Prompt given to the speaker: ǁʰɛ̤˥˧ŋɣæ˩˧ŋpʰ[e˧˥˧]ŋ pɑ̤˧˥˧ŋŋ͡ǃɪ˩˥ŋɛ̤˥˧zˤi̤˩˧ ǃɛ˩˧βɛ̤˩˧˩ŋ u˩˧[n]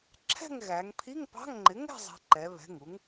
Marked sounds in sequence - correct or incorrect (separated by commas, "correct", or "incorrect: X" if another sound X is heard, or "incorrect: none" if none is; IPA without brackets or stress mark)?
incorrect: i˧˥˧, incorrect: ŋ